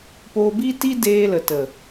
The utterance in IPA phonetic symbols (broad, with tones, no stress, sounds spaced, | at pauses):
p oː˧ b i˦ t i˦ d eː˧ l ə˨ t ə˨